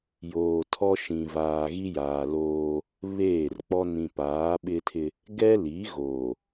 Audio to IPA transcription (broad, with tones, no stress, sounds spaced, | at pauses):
j oː˨ tʰ ɔ˦ ʃ ĩ˨ v aː˨ ɣ i˦ j aː˨ l oː˦ | β eː˦˨ r k͡p ɔ˦ n ĩ˨ p aː˨˦ ɓ ɪ˦ tʰ ɪ˦ | ɡ ɛ˦ l i˨˦ ɣ oː˨